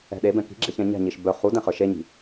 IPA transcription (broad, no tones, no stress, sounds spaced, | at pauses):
ɛ̤ ɗ e b ɛ̃ k i̤ ɡ͡ǁ e ç ɛ̃ ɲ ɛ̤ ɲ i ʃ b œ χ u d ɛ̃ χ ə˞ ʃ e ɲ i̤